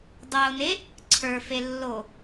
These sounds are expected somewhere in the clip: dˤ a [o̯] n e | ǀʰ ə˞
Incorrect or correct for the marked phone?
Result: correct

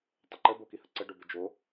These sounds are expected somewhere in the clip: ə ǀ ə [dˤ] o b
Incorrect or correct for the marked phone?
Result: incorrect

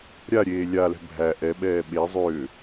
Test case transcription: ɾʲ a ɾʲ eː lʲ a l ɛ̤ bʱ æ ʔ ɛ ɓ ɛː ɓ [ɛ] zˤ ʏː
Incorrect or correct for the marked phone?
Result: incorrect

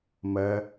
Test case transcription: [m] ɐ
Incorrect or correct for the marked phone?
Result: correct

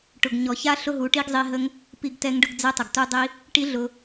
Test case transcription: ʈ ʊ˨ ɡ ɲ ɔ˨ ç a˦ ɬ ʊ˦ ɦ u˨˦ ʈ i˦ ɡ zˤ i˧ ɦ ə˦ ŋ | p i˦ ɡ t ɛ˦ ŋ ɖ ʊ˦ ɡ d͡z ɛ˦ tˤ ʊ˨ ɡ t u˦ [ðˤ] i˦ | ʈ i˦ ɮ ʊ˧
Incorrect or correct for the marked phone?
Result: incorrect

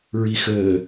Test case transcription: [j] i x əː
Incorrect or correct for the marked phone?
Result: incorrect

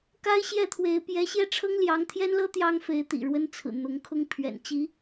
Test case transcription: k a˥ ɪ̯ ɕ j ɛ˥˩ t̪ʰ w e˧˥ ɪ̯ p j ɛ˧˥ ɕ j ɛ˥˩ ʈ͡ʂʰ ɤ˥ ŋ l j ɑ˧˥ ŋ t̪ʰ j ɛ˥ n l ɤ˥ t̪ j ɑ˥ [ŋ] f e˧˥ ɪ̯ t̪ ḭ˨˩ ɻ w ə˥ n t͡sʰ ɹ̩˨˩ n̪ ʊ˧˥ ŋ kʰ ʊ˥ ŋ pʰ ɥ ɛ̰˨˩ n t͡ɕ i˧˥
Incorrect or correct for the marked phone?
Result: correct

